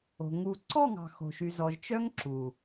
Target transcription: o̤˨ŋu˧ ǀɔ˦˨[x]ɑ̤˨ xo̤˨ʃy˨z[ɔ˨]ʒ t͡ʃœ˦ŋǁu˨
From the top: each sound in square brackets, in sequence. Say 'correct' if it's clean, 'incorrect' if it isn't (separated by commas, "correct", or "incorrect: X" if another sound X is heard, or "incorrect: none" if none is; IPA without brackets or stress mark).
incorrect: ŋ, correct